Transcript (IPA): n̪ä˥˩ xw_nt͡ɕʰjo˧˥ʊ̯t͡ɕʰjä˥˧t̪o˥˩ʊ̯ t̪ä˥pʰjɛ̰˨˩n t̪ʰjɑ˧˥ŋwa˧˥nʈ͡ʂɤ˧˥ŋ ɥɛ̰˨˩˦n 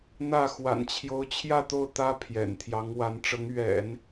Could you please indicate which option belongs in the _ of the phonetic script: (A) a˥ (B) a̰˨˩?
B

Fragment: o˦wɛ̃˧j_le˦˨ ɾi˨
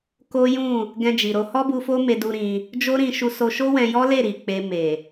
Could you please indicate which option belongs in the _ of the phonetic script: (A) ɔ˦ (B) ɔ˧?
A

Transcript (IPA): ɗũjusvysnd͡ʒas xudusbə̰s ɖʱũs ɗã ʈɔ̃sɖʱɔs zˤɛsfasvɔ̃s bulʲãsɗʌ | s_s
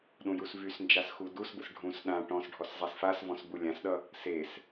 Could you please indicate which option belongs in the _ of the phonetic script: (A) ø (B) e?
B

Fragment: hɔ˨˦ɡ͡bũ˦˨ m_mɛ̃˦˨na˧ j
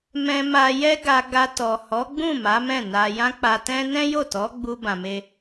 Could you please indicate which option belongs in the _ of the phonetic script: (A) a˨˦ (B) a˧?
A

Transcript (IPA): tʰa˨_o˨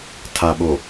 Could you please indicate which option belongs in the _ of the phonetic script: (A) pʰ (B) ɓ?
B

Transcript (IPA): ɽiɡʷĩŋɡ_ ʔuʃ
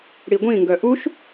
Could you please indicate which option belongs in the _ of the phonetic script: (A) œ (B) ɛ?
A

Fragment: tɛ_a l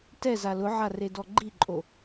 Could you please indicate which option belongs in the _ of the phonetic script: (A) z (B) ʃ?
A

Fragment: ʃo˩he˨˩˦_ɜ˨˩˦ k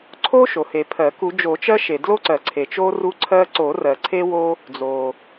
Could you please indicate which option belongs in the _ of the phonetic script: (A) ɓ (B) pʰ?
B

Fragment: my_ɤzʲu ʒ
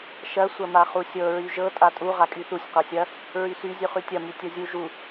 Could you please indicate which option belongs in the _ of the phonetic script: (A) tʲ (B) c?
A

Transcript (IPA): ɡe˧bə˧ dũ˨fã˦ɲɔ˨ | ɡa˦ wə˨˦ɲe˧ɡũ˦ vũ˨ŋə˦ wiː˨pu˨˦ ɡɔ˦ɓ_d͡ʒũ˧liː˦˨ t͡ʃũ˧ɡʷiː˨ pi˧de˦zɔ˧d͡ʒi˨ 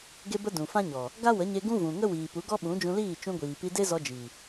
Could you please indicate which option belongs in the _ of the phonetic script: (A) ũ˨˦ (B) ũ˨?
A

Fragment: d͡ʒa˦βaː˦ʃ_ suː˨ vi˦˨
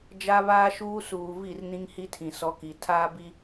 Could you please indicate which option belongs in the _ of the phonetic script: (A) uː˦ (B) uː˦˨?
A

